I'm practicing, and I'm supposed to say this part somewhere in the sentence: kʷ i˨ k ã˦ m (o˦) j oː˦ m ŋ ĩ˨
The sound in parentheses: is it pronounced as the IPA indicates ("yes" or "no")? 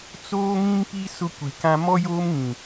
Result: no